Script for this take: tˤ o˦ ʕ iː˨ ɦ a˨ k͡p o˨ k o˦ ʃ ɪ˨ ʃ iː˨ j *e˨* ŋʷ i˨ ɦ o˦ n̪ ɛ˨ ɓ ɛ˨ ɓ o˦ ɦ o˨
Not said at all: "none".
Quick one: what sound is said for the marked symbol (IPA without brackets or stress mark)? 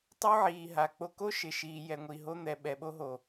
ɛ˨